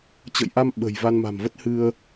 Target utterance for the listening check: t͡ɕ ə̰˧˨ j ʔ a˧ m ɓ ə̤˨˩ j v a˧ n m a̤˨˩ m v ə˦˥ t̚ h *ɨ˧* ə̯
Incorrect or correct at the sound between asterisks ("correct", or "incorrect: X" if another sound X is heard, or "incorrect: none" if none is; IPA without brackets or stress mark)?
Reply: correct